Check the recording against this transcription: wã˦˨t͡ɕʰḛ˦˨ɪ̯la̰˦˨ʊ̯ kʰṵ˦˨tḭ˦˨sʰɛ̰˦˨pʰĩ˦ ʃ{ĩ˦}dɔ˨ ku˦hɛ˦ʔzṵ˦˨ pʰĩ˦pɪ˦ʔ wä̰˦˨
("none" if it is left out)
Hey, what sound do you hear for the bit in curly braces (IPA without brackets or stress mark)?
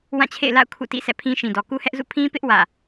ĩ˨